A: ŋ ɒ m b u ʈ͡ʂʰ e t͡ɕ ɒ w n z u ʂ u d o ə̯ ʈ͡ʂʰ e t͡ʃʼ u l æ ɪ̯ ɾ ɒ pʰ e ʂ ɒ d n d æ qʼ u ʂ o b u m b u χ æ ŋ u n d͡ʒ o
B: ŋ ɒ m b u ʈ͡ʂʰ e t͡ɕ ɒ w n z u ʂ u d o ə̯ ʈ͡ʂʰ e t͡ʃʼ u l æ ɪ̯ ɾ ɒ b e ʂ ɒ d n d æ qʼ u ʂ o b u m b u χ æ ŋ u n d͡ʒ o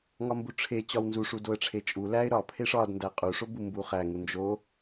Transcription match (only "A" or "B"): A